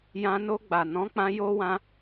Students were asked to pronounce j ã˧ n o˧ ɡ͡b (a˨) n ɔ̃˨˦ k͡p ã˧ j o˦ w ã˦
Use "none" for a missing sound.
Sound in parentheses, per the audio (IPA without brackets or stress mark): a˨